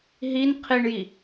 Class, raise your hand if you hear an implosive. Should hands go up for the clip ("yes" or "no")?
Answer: no